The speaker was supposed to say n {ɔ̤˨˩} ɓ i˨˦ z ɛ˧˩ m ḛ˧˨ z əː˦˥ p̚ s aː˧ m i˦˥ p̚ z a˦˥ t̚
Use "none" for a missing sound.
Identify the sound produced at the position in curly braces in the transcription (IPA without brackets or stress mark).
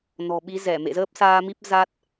ɔ̤˨˩